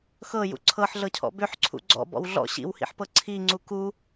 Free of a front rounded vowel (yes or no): no